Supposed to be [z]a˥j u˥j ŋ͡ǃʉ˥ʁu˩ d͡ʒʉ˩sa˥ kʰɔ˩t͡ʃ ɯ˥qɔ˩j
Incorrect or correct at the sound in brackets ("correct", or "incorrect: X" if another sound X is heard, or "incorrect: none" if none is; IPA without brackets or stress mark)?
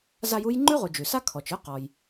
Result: correct